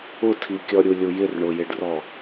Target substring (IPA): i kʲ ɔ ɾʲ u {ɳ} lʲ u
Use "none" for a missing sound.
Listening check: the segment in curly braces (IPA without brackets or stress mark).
none